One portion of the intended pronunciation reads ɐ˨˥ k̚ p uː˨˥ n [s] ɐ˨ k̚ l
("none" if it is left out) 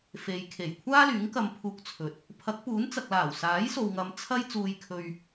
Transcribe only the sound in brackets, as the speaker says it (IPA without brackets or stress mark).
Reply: t͡s